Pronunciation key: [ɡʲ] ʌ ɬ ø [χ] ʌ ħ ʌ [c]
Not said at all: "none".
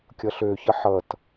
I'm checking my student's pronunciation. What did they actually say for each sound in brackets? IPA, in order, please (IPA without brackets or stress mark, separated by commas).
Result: kʲ, ç, t